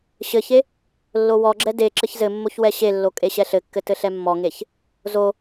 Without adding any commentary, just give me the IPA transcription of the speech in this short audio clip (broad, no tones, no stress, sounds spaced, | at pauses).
ɕ ɘ ç e | lː o w ɔ ɡ͡ǁ ɛ d e ǁ ɘ ç z ɘ mː o ç w ɛ ɕ e lː o kʼ e ɕ ɛ ɬ ɘ kː ɘ t ɘ ɬ ɛ mː ɔ ŋ e ç | z o